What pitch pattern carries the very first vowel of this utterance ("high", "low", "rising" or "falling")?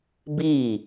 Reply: falling